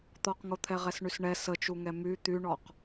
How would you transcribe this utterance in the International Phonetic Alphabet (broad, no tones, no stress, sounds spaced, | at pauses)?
t̪ ɔ q ŋ o t̪ʰ ɛ ʁ ɛ s ɳ y s ɳ ɛ s ə t͡ʃ u ŋ ɛ m y t̪ y ɳ ɔ q